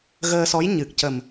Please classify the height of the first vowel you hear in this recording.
mid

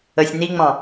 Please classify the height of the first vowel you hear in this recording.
mid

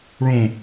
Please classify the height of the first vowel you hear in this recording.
mid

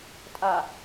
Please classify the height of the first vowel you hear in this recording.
low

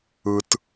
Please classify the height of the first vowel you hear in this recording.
high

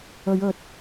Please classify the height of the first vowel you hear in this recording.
mid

